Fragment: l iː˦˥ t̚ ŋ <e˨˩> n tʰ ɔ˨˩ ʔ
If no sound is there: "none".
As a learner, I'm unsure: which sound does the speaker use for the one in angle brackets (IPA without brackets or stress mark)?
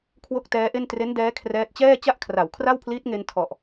e˧